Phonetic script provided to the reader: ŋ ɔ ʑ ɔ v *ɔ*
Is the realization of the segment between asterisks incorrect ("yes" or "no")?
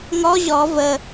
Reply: yes